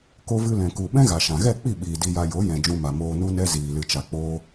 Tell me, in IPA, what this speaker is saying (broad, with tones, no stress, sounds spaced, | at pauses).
k o˧ v ɨ˧ l ɛ̃˨ k u˨ ɓ ɛ̃˦ ɣ a˨ ʃ ã˨ ɣ ɛ˦˨ k͡p i˦˨ ɓ iː˨ d i˧ j a˧ j o˨˦ j ɛ̃˨ d͡ʒ ũ˧ m a˨ m oː˧ n u˦ n ɛ˦ z iː˨ l ɨ˨ t͡ʃ a˨ k͡p oː˧